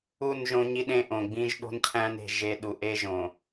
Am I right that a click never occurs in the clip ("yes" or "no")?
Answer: yes